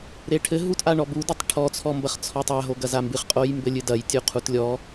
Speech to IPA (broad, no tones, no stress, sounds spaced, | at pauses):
ɾ e ʈʰ ɘ ɦ u t ʔ a ɳ ɔ b u d ɛ tˤ ʈʰ ɔ t͡sʰ ɔ m b ɐ χ t͡sʰ ɔ tˤ a ɦ o ɡ ɐ z a m b ɨ χ qʼ o j m b ɘ lʲ ɨ d ɐ j tʲ u qʰ u t lʲ ɔ